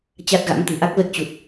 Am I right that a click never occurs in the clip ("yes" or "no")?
yes